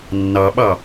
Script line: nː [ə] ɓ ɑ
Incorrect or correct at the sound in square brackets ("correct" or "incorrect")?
incorrect